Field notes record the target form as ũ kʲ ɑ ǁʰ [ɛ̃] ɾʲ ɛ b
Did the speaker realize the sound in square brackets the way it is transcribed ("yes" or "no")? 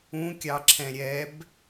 yes